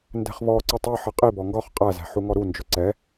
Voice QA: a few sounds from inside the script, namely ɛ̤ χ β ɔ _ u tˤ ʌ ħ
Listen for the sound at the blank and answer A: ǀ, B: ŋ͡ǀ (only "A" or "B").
A